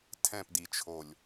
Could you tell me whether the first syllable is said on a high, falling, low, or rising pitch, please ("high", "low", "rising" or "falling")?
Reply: falling